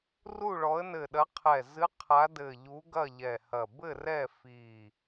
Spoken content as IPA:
r u˦˨ ɭ ɔ˨˦ ə̯ n ɘ˨˩ ɗ ɐ˨˦ qʰ ɛ˨˩ z ɨ˨˦ qʰ a˨˦ d ɘ˨˩ ʎ u˨˦ ɡ ɐ˦˨ ʎ ɛ˨˩ h ɐ˨˩ b ɘ˦˨ r ɛ˦˨ f i˨˩

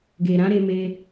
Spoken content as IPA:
ɡ e˨ ɾ ã˨˦ ɾ e˧ m e˦

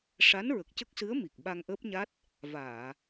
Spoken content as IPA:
ʂ a˧˥ n ɹ ə˨˩ k̚ c ə˦˥ k̚ s ɨ˧˥ ə̯ m i˨˩ k̚ ɓ a˧ ŋ ʔ əː˦˥ p̚ ɲ a˦˥ t̚ | v aː˨˩˨

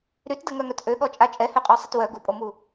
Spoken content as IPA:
ɾ y t d ə ŋ œ ŋ œ t ʔ ø ɠ ɔ t͡ʃʼ a t͡ʃʼ ɛ h ø qʼ ɔ sˤ ə t w œ ɡ u pʼ o m u

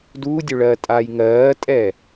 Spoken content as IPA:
d uː dʲ ø ɭ ɜː tʼ aː j ŋ ɜː tʼ ɛː

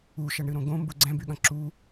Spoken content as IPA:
u ʃ ɐ ɳ ɾ ɨ ɾ õ ɡ õ m b u ɡ͡ǀ ɛ̃ b y ɠ ɐ̃ ǁ u

